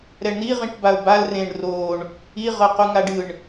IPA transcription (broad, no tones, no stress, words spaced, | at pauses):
ɾɛɳn̪iʁĩʈ baʊ̯bal rẽɳ roɳ | iʁɤqu ŋaɖɯɳ